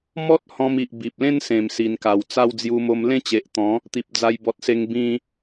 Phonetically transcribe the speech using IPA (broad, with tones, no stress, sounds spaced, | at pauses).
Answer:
m ɔ˦ t̚ h ɔ̃˧ m i˨ ʔ b i˨ p̚ l ẽ˥˧ n s ẽ˨˩ m s i˨˩ n k a˨˩ w t͡s a˥˧ w d͡z j u˧ m o˧ m l ẽ˥˧ t͡ɕ e˨ ʔ t̪ ɔ̃˨˦ | t̪ i˨ p̚ d͡z a˧ j b ɔ˨ t̚ s e˧ ŋ b ĩ˧